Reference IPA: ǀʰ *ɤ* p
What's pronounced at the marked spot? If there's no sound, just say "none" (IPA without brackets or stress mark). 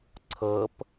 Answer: ɤ